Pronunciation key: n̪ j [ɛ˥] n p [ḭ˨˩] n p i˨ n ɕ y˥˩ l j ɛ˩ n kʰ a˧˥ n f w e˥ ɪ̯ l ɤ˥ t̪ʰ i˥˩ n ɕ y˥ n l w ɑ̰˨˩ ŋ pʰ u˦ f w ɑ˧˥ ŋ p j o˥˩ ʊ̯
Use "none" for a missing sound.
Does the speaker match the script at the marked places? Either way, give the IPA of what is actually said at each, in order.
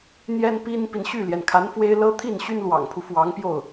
ɛ˥, i˥

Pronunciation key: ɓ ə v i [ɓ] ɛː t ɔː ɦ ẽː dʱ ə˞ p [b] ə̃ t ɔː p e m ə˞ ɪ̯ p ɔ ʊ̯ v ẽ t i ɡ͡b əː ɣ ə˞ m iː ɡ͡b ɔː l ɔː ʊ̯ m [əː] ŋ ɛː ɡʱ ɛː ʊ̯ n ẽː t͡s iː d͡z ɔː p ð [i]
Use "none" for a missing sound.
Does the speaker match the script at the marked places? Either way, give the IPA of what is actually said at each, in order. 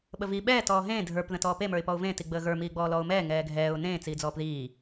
ɓ, ð, ɛː, iː

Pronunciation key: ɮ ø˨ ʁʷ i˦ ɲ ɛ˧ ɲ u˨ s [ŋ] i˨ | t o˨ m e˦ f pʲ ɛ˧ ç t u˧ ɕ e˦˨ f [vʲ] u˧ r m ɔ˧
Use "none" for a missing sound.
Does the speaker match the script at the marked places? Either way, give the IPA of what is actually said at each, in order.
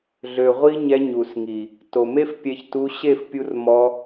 ŋ, pʲ

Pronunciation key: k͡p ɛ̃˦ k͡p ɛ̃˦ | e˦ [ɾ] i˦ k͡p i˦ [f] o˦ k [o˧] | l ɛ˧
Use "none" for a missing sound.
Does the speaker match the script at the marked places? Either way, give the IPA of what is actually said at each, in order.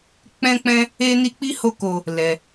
n, h, o˧

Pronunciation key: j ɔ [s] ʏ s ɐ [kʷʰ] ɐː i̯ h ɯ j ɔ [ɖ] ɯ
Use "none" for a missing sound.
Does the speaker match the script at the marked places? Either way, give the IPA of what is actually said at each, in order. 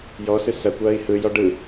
s, kʷ, ɖ

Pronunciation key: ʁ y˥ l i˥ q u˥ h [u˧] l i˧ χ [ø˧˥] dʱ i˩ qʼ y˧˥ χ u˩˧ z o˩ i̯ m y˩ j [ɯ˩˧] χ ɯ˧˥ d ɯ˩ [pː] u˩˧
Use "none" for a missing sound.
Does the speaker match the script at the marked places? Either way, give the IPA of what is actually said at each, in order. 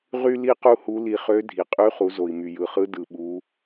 u˧˥, ø˧˥, ɯ˩, ɓ

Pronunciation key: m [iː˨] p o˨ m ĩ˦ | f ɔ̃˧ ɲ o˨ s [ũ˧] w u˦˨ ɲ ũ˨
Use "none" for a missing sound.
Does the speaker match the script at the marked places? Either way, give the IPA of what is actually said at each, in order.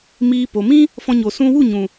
iː˧, ũ˧

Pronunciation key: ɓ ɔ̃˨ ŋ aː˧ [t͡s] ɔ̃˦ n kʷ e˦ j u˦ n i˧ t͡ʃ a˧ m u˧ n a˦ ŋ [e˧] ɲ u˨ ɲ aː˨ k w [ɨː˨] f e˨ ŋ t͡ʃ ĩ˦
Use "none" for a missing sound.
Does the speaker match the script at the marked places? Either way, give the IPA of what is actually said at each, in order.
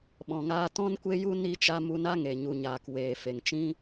t, e˨, eː˨

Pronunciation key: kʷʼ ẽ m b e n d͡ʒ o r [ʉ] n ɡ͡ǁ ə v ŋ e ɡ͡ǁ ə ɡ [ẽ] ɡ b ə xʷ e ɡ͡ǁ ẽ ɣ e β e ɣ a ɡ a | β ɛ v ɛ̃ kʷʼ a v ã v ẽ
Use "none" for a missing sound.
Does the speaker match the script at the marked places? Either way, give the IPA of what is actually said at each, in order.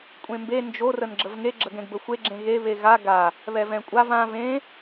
ə, ɛ̃

